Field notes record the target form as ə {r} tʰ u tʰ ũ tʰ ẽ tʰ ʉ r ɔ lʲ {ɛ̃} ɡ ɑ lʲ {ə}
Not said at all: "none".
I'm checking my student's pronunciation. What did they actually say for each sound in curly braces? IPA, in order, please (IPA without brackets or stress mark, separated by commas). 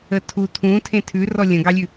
none, ə̃, ʉ